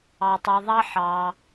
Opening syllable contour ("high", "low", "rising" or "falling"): low